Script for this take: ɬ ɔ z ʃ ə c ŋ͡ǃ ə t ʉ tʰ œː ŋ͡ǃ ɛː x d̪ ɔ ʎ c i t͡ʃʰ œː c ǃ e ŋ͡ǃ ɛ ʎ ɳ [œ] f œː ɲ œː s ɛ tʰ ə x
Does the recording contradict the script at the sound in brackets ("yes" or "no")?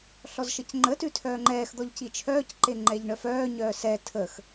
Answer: no